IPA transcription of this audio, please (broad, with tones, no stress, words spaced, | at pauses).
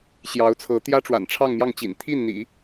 ɕjɑ˧˥ʊ̯t͡sʰɤ˧˥ t̪jä˥ ʈ͡ʂwa̰˨˩nʈ͡ʂʰɑ˥˧ŋmjɑ˥˩ŋt͡ɕḭ˨˩n t̪ʰi˥˩nn̪ḭ˨˩˦